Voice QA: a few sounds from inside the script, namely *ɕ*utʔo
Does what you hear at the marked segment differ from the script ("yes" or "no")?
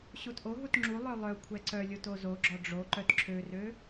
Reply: no